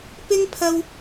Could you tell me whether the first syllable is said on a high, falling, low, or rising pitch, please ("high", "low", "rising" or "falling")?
high